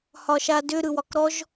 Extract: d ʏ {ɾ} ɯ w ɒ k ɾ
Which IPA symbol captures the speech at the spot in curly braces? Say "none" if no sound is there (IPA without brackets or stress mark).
ɾ